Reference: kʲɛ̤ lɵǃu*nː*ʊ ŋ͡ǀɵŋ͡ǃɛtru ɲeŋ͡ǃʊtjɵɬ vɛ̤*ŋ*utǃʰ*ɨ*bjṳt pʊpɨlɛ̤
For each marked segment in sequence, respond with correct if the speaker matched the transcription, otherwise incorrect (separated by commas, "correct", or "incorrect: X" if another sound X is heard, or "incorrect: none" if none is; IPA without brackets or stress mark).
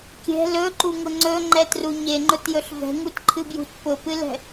incorrect: ŋ, correct, correct